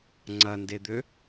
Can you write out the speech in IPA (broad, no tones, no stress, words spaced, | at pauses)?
ŋ͡ǀɐnded̪ø